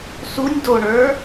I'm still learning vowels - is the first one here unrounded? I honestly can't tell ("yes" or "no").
no